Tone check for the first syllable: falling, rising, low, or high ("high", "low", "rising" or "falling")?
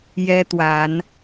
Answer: high